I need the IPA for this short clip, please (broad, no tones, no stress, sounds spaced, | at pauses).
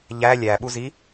ʎ æ lʲ æ ɓ u z i